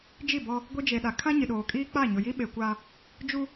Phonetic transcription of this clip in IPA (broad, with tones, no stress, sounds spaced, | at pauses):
d͡ʒ i˦˨ b ɔ˦ | ɡʷ i˦ d͡ʒ e˨ ɗ a˨ kʰ ã˦ ɲ ɪ˨ ɗ oː˨ kʼ iː˦ k͡p a˦˨ ɲ ʊ˨ j i˦ ɓ e˨ kʷ a˦ | d͡ʒ u˦